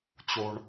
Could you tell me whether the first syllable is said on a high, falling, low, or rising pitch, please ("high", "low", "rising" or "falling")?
high